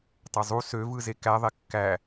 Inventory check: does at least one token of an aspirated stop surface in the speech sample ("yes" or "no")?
no